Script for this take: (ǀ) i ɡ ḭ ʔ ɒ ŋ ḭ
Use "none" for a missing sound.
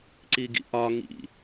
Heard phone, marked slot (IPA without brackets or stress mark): ǀ